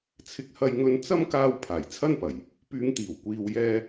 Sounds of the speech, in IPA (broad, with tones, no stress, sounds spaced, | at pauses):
t͡sʰ ɪ˥ k̚ h ɐ˥ j ŋ ɵ˥ n t͡s ɐ˥ m k aː˧ w pʰ aː˨˩ j t͡sʰ ɐ˥ n p ɐ˨˩ j | p yː˨˧ ŋ t̪ iː˨˩ w kʷ iː˨ w j ɛː˧